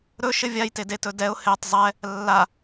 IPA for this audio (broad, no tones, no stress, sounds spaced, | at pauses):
ɾ ɵ ʃ ɘ vʲ a j t e d e t ɵ d ɛ ʊ̯ h e tˤ zˤ ɛ | lː a